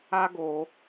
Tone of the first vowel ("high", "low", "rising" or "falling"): high